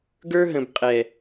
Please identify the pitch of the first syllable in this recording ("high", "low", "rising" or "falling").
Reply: high